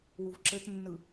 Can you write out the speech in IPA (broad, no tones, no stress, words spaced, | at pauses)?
wuvǁɘtnːɯ